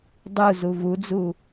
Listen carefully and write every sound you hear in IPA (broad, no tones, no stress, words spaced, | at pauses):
dˤu zuvud͡zu